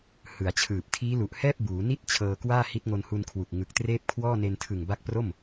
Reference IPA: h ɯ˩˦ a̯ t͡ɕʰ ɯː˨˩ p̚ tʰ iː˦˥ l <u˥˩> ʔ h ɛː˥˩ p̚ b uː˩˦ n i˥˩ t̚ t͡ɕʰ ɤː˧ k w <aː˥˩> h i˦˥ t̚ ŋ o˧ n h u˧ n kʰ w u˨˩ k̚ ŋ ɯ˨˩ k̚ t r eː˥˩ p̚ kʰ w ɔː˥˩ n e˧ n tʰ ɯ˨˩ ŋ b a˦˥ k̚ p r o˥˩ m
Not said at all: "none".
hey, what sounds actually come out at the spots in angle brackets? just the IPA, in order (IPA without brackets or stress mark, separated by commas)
u˨˩, aː˥˩